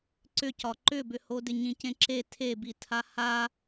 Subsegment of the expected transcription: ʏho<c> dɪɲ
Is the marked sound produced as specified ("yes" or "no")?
no